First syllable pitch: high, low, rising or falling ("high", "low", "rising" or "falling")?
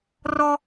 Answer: high